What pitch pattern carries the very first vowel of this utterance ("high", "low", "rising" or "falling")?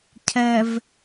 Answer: low